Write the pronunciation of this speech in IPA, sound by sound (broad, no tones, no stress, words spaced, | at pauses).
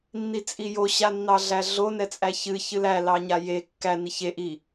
nːit͡sʼijo ɕanːɑɮæɮo nɛt͡sʼæçɨ çɨlæ lɑɲaje kːæ niçe ʔi